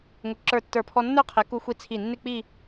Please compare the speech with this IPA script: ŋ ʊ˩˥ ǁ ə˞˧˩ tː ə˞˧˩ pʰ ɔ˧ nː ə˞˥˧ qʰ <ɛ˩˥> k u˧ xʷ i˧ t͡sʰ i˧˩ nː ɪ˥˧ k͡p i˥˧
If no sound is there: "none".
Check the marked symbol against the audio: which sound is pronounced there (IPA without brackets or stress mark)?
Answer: ɛ˩˥